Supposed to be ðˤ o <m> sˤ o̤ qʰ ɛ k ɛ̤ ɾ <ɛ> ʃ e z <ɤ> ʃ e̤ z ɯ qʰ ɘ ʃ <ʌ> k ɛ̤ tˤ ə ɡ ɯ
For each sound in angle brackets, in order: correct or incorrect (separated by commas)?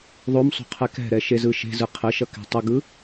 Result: correct, correct, incorrect, correct